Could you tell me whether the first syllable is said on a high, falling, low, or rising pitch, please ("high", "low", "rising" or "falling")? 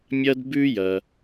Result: high